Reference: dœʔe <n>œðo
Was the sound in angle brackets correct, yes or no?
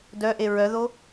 no